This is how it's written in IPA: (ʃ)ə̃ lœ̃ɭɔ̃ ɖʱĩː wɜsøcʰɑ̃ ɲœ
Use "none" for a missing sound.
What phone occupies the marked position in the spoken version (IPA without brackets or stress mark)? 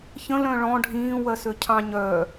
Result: ç